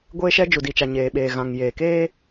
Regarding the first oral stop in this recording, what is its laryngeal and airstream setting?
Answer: plain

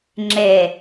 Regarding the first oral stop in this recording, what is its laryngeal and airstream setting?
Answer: click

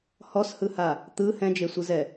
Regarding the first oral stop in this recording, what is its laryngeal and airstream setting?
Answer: plain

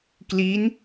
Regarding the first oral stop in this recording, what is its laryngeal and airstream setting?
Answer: plain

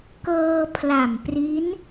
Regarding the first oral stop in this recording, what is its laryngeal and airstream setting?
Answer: plain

